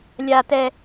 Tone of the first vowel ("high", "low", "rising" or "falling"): low